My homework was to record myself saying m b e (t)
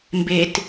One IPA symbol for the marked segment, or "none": t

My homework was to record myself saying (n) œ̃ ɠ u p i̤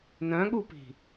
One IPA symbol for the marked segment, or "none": n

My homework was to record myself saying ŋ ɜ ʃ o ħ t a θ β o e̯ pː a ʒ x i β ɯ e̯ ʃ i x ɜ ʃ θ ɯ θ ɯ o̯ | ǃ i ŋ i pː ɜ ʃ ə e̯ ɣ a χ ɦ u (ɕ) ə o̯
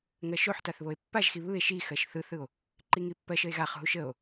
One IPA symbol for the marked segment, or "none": ʃ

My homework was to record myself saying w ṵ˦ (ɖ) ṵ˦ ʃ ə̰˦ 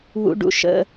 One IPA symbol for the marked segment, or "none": ɖ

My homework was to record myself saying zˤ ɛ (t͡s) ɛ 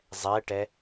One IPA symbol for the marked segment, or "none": ʈ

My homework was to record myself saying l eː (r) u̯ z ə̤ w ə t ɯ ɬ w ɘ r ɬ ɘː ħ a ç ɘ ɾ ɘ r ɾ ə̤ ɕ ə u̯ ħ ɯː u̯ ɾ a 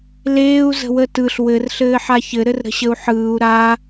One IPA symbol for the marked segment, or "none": none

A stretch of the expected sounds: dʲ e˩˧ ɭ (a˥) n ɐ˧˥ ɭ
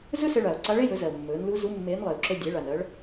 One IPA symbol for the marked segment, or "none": a˩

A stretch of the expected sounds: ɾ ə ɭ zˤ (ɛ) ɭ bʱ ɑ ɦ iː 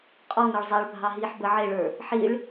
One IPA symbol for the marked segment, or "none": ɛ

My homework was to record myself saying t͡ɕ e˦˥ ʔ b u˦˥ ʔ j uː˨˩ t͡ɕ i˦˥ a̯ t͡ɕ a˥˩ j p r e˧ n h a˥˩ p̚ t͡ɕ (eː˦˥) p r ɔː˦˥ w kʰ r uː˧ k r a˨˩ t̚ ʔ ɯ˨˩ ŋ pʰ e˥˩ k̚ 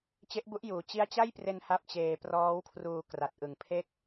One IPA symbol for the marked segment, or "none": eː˧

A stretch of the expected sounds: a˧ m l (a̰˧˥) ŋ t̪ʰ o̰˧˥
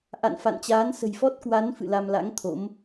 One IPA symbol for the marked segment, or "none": a̰˧˥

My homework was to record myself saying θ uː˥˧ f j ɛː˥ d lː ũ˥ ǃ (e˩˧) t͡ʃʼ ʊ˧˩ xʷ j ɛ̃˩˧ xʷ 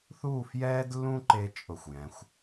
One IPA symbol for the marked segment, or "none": e˧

